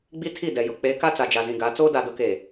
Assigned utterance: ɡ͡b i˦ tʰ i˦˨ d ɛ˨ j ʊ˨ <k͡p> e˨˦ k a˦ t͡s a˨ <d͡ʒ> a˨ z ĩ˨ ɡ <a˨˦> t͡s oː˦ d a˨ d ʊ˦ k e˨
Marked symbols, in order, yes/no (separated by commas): yes, yes, yes